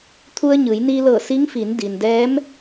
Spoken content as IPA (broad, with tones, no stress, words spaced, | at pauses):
t̪ʰu˧ə̯ɲɯː˩˧jniː˧ lɤː˧˩si˧˥ŋfiː˩˧n di˩ndɛː˧˥m